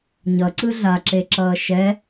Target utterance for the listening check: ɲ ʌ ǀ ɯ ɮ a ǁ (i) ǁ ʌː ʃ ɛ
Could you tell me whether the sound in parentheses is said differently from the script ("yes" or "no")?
yes